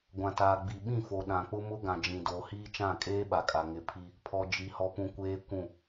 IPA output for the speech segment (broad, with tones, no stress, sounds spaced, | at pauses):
ɡʷ ã˨ t aː˨ ɡ͡b i˨ ɓ ĩ˦˨ f o˨ ɗ ã˨ k͡p ʊ˦ m ʊ˦ ɡ ã˨ d͡ʒ ĩ˨ d oː˨ h iː˦ t͡ʃ ã˦˨ kʼ eː˦ ɓ a˨ kʼ a˨ ŋ ɪ˨ pʰ i˦ | pʰ ɔ˨ d͡ʒ i˨ h ɔ˨ p ũ˨ kʷ eː˦ kʷ ũ˦˨